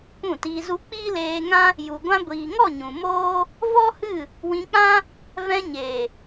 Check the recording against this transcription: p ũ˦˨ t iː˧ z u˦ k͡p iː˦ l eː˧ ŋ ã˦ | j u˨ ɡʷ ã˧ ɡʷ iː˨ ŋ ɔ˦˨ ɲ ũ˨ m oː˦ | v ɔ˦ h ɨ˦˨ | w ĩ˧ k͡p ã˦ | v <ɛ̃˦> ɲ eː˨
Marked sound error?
yes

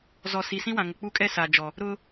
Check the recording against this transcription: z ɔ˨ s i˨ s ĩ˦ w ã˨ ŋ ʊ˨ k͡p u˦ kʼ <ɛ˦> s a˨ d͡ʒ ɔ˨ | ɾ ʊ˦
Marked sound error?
no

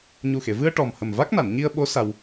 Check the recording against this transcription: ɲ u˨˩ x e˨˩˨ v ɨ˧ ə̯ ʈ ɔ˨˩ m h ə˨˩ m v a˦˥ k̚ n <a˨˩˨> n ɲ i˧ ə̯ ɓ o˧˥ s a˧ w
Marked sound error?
no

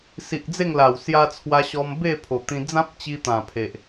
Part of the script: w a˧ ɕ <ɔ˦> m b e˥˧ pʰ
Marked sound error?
yes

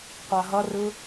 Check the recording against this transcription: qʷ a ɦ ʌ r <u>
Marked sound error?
yes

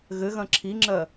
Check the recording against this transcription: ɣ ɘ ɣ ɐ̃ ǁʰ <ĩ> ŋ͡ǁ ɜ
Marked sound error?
yes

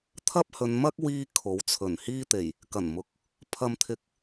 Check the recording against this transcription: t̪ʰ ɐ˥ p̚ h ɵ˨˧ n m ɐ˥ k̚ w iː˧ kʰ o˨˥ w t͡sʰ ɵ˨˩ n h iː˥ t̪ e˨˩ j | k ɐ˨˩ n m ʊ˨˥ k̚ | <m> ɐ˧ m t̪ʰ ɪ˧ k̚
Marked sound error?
yes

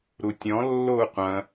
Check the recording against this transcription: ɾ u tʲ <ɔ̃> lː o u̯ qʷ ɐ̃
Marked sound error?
no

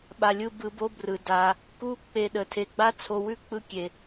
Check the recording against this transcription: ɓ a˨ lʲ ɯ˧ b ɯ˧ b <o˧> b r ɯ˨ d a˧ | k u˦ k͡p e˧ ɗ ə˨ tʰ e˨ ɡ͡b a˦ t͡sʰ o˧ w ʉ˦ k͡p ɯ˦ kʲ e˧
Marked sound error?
yes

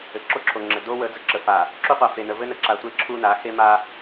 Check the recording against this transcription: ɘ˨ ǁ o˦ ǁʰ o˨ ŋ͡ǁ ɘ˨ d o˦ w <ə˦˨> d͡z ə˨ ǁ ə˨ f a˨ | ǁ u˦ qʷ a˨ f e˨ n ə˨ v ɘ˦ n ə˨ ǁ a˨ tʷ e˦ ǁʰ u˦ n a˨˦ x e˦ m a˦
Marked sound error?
yes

